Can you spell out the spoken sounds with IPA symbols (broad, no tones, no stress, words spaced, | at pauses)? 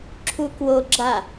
ǁʰukwoɡ͡ǁa